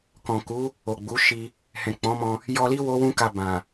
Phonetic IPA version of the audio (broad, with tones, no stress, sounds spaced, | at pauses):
k ɔ̃˨ k u˨˦ | o˨ ɡ͡b u˨˦ ʃ i˧ | h ɛ̃˨ k͡p ɔ̃˨˦ m ɔ̃˧ | j ɔ˧ l i˦ w o˦ w ũ˦ k a˧ b ã˨